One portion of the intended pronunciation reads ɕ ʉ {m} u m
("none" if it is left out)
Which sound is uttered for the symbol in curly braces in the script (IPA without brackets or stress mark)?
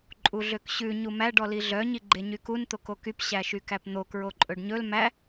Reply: ɲ